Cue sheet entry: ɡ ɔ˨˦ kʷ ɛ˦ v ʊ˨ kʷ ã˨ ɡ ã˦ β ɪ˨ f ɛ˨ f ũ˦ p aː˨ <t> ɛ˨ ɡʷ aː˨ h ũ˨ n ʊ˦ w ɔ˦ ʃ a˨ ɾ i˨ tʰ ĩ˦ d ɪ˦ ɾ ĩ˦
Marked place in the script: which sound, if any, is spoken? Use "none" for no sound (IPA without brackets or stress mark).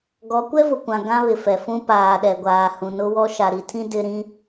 ɗ